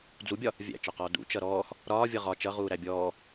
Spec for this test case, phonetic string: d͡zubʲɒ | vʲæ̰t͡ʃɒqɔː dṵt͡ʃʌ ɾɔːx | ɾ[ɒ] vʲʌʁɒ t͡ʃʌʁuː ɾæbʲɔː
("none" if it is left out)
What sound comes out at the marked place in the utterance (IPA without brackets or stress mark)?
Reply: ɒː